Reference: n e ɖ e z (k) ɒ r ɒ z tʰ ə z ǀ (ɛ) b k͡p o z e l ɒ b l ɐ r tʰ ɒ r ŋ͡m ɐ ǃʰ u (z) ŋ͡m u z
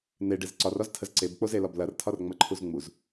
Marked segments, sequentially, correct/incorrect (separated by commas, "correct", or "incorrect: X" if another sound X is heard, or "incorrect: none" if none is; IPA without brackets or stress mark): incorrect: ǀ, incorrect: e, correct